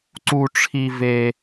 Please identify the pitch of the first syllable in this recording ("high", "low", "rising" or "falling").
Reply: high